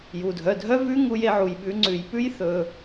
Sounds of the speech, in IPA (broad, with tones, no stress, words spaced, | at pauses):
ju˩dʱœ˩˧˩dʱœ˦˥ vʉ˦˥ ŋu˧j e˧ʕu˩jɓʉ˩˧ ŋ͡ǀʉ˩j pʉ˦˥jθɵ˩